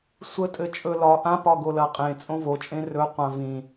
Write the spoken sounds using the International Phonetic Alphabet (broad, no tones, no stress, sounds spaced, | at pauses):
sʷ ə tʼ ɘ t͡ʃʼ ɵ l ɒ ʔ ã p ɒ ɡ o l ɐ qʼ ẽ t͡sʼ õ v o t͡ʃʼ ẽ r ɵ qʷ ã v ĩ